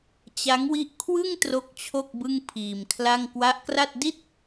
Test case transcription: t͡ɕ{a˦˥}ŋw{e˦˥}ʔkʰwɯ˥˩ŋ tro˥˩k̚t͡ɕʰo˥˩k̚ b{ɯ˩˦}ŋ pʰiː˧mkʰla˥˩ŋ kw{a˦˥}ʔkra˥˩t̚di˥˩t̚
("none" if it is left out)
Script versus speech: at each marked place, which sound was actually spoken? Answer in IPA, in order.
a˦˥, i˦˥, ɯ˥˩, a˦˥

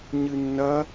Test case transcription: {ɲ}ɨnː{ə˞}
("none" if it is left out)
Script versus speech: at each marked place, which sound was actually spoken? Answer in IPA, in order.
ɲ, ɐ

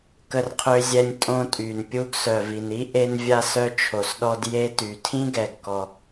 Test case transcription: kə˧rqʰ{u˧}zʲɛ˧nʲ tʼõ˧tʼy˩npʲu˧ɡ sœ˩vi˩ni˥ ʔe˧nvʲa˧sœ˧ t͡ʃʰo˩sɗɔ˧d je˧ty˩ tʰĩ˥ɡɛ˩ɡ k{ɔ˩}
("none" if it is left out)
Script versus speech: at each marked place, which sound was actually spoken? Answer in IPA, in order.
ø˧, ɔ˩

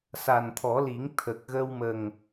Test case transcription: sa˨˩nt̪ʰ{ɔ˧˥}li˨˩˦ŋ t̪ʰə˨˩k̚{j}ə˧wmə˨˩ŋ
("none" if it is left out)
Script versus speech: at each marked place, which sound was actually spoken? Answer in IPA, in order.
ɔ˨˩˦, ɣ

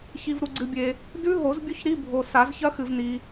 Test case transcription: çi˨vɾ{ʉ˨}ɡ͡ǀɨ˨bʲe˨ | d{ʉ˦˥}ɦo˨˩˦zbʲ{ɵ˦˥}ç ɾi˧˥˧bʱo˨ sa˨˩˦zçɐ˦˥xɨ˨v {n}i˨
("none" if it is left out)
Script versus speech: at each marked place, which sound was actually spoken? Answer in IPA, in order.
u˨, ʉ˦˥, ɵ˦˥, n

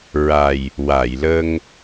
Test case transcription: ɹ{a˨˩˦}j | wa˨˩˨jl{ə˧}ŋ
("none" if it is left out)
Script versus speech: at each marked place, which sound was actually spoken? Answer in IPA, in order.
a˨˩, ə˧

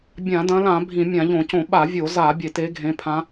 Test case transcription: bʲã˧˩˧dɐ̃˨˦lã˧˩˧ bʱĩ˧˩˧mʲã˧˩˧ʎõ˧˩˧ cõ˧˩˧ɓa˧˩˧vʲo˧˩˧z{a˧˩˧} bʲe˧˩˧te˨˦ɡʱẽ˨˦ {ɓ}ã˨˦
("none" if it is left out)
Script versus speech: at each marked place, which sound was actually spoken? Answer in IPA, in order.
a˧˩˧, pʰ

